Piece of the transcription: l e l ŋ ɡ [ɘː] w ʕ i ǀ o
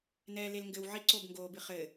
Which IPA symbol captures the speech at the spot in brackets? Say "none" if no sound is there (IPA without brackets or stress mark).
ɘ